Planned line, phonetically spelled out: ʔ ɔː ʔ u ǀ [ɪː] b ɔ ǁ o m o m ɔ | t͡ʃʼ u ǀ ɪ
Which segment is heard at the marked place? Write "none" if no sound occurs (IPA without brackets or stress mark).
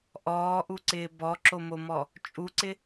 ɪː